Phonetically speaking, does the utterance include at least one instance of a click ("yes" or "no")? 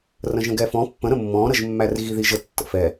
no